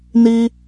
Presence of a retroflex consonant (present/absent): absent